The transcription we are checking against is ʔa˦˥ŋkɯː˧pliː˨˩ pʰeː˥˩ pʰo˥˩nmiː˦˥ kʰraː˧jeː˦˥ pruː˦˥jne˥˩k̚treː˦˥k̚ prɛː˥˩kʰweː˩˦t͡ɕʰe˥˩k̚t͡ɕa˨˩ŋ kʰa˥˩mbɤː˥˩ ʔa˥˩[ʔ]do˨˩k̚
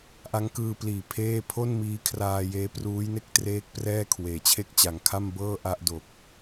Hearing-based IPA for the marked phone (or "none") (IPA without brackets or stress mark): ʔ